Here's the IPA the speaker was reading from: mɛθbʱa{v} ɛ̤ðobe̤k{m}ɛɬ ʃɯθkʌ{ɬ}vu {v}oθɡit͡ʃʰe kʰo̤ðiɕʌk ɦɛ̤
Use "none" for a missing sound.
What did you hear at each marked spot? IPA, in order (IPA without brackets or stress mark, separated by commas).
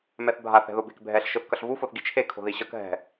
θ, bʱ, ɬ, f